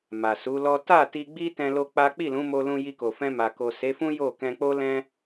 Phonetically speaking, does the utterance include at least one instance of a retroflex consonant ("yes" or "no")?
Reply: no